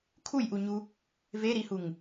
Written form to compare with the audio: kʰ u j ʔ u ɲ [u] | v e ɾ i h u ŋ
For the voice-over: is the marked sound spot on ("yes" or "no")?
yes